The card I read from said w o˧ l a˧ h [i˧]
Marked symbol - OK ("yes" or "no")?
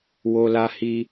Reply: yes